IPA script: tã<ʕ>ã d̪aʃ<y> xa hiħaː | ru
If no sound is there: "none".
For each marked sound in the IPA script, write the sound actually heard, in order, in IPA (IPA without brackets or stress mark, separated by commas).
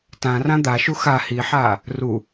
r, u